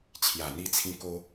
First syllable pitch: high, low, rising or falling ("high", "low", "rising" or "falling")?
low